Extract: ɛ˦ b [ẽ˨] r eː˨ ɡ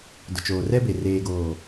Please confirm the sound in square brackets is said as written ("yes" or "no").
no